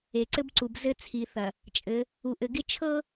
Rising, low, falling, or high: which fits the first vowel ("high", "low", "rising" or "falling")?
low